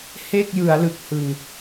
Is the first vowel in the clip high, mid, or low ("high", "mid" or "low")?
mid